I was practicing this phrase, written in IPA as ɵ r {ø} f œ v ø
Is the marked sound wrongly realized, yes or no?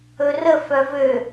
yes